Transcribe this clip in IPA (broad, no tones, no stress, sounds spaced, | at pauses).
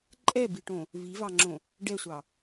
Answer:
ǃʼ ɛ b i ʈ õ | v i v ɑ ŋ͡ǁ õ | ɖ ɛ sʷ ɑ